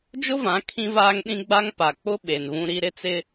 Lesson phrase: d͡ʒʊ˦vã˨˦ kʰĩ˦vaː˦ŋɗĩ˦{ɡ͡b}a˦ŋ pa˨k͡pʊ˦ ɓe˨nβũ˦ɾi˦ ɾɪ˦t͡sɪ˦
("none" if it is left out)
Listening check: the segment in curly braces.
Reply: ɡ͡b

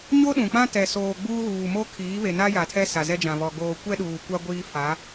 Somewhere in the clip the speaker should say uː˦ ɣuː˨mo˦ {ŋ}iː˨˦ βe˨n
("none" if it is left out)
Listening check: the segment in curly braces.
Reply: kʰ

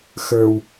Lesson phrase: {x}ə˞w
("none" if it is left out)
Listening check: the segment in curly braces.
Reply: x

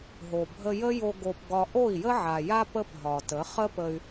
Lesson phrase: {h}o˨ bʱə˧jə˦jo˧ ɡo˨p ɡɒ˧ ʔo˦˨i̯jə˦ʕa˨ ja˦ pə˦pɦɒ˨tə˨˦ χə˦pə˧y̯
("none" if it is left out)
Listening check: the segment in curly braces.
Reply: ɦ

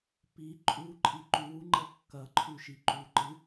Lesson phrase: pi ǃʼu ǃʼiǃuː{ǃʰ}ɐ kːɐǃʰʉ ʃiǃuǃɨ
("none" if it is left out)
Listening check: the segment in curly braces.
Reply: ŋ͡ǃ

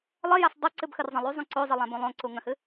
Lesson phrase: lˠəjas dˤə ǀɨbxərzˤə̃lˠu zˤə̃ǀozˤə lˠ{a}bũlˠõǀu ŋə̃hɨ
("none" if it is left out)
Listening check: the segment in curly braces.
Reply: ã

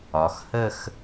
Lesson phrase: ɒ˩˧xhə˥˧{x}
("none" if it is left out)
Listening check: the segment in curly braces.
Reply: x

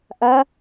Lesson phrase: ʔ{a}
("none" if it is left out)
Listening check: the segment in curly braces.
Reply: ɐ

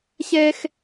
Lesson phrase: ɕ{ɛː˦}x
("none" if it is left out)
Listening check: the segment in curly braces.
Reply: ɛː˦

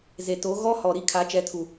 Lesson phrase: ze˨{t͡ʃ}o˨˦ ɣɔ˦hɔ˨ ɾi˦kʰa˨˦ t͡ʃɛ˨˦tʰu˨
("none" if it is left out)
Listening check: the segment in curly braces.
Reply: t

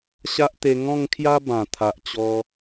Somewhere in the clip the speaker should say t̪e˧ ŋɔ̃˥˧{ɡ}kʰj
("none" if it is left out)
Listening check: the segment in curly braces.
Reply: ŋ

